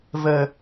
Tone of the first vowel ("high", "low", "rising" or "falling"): low